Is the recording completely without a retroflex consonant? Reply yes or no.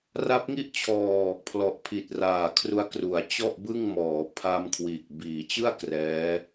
yes